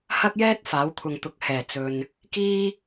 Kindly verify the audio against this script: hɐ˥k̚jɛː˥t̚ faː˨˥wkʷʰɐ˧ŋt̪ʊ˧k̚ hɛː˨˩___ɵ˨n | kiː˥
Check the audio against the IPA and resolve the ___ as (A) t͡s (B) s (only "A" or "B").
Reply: A